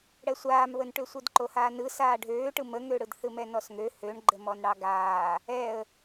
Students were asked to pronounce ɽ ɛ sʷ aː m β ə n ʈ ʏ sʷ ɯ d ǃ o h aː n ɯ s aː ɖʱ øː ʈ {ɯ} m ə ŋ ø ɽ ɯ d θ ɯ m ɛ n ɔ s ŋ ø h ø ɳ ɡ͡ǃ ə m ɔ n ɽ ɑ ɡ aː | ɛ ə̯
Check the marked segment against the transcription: correct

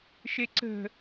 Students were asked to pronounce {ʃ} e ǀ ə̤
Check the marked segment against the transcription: correct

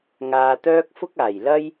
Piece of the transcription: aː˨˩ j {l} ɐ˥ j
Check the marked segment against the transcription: correct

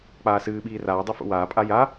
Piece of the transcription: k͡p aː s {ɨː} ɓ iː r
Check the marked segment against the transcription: correct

